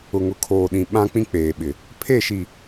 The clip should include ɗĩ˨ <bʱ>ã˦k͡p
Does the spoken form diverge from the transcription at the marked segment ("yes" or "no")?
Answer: yes